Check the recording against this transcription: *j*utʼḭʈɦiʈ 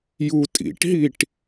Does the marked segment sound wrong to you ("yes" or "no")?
no